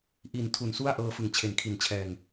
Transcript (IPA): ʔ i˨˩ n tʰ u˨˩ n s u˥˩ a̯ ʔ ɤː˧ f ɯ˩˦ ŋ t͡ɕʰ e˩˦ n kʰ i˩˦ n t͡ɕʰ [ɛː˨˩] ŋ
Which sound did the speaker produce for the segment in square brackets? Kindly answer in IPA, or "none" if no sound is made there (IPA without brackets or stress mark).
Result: ɛː˨˩